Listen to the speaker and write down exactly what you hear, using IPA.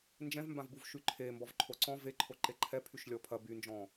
nd͡ʒɛ̃vmbãvbuv ʃyǃʰe mbɔvǃʰoǀɔ̃ ve ǃʰoǃeǃʰɛ pʰyʃlʲɔpʰɐ bynd͡ʒɔ̃

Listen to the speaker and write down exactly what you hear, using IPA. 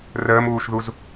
rəːmuːʃðuz

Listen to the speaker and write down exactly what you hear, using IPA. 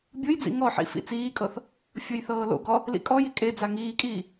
bʲɯjd͡zḭ ŋɔħḭ fḭt͡siːkʼɤθ | fʲɤjθɤːlo̰ɡɔ | lḭkʼɔji kʼed͡za ŋiːkʼiː

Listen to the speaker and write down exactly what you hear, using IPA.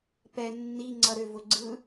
pɛ nːi ŋ͡ǀʌɾʏ vʊɡ͡ǀɯ

